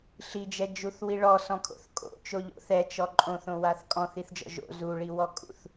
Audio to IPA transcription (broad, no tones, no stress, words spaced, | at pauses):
ɬid͡ʒɛd͡ʒuθwi ɭɔsɔ̃kʰo̰θ kʼo̰t͡ʃoʎo̰ θɛt͡ʃɔ ǃʼõθõwaθ kʼɔ̃θiθd͡ʒɔ̰ ʒo̰ zuɭiwɔkʼṵθ